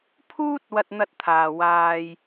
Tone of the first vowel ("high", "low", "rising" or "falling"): high